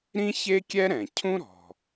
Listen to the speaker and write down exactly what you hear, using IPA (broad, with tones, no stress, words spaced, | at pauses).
ɾĩ˥ çe˥kʲɛ˥ ɾɛ̃˩cʰũ˥ɾɔ̤˩